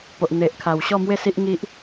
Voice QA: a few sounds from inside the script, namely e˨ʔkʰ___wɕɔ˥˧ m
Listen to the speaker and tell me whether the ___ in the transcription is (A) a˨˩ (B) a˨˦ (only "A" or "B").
A